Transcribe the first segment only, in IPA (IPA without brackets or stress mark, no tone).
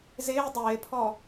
z